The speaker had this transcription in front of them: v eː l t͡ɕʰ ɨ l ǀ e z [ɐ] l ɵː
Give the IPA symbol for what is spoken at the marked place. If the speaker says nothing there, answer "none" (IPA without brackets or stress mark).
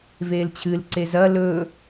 ɐ